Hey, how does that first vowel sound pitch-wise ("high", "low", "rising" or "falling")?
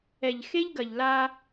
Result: low